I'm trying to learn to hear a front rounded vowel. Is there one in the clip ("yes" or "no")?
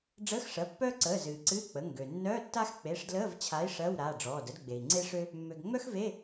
yes